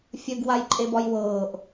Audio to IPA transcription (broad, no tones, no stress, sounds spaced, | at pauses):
fʲ ə ɡ w a j ǃʼ e b ɒ j w ɤː ʔ